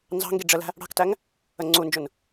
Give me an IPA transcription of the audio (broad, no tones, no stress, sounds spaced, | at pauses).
n z ɑ̤ ŋ ɡ i ɖ͡ʐ ə l æ̤ | ɽ ɑ̤ k t æ ŋ | ə ŋ͡ǀ u n d͡ʒ ʊ n